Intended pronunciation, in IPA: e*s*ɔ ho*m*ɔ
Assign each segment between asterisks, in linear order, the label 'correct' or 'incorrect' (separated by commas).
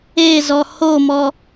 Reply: incorrect, correct